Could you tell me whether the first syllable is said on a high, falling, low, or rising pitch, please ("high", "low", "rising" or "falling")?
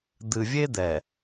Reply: low